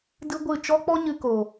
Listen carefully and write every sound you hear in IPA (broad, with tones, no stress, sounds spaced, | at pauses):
d ɨ˦ ɡʷ ɨ˦˨ t͡ʃ ɔ˦ k͡p ɔ˦ ɲ ɨ˧ k o˨